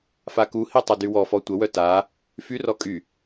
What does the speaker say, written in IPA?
fakuhi tˤœdywɔfɔ tʷəwœ ta | fyrɔ kʼy

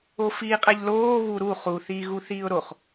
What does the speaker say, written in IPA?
ofiːqʼæʎloː βuɾu χu θiːɣuθiːʊ̯ɾoχ

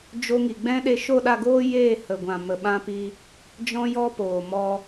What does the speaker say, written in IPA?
d͡ʒo˧ŋi˨ɡ͡bɛ̃˦ ɗe˦ ʃo˦˨ɗa˦˨ ɡoː˦ jeː˦˨hə˨ɡʷã˨mə˨ ɓã˧pi˧ | d͡ʒɔ̃˦jɔ˦poː˨ mɔ˦

